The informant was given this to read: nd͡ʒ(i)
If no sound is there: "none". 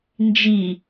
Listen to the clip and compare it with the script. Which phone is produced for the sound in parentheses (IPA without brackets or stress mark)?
i